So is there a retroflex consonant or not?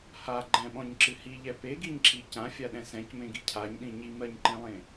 no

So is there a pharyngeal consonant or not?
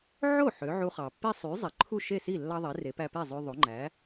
yes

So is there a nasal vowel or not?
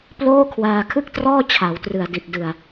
no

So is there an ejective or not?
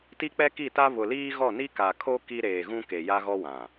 no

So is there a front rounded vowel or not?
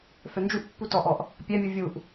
yes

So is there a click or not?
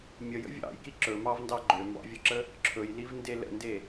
yes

